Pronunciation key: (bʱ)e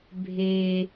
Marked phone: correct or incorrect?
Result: correct